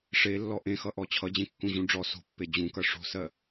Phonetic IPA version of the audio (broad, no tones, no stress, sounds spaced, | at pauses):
ʂ e lː ɔ ʔ ẽ x ʌ ʔ ɔ t͡ɕʰ ʌ d͡ʑ ẽ kː ũ ʑ ũ ɖ͡ʐ ɔ s o̤ pː e d͡ʑ ũ k ʌ ʂ o̤ s ɜ